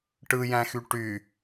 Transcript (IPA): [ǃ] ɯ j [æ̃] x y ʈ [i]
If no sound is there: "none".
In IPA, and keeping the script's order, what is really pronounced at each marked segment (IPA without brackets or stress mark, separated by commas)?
ʈ, æ̃, y